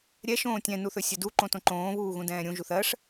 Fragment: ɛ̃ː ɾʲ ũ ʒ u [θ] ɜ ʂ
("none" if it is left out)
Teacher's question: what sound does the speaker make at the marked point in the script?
θ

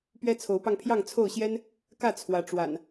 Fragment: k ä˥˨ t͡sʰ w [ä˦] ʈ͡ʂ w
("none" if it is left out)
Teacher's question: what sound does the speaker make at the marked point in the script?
ä˨˦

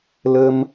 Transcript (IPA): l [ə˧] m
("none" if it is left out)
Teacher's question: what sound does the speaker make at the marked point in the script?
ə˧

